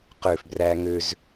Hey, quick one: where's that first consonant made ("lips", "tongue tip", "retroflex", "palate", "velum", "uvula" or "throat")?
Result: uvula